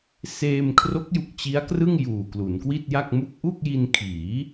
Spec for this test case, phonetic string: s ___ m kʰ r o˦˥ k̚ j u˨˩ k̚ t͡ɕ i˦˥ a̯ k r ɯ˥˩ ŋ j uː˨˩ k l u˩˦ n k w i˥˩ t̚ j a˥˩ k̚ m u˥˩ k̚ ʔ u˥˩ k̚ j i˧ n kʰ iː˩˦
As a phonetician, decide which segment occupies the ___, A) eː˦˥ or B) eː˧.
B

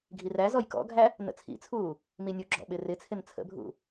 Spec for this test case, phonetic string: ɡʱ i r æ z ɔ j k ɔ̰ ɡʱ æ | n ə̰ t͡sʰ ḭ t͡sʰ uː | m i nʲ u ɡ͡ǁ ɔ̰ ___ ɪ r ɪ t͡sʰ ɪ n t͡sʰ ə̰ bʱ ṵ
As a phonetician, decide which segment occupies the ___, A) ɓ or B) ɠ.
A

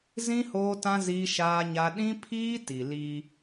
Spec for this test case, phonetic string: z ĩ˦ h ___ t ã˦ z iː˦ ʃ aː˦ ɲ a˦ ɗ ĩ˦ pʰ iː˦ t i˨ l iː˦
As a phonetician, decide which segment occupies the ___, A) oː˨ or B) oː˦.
B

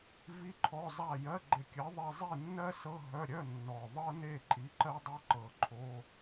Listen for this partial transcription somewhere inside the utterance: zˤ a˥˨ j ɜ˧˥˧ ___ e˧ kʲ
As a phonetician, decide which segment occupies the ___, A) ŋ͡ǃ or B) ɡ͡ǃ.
B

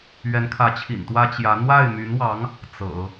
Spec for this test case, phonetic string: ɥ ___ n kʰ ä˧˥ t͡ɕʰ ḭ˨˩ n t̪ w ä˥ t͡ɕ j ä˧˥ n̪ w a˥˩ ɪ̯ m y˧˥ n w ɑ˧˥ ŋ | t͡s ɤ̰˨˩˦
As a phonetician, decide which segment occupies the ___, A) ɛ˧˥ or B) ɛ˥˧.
A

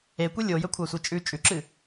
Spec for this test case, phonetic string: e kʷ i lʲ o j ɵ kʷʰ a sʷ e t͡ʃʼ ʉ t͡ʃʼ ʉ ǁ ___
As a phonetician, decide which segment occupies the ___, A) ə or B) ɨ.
B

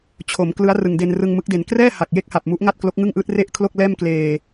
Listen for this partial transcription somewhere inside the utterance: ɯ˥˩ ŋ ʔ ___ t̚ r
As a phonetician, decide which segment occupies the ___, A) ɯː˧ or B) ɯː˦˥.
B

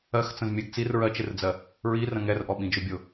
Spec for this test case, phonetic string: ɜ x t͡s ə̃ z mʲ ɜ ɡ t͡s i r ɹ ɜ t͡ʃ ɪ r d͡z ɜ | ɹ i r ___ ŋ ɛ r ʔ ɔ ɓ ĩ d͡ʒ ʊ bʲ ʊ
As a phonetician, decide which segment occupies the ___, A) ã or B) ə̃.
B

